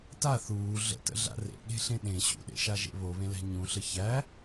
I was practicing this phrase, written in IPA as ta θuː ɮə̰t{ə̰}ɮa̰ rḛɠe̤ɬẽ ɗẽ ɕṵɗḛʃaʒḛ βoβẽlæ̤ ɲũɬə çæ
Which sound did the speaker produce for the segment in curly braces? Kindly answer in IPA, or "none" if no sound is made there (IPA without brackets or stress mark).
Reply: ə̰